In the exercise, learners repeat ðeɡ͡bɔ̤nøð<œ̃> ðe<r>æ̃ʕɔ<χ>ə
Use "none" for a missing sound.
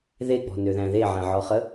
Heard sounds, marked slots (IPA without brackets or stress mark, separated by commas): æ̃, ʕ, χ